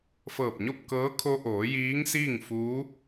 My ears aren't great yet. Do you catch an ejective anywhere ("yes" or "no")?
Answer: no